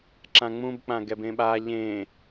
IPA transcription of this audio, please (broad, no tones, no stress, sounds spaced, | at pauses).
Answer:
ǁ ã ŋ͡m ũ b k͡p ã ɡ ɛ b ẽ ɓ a ʎ ẽ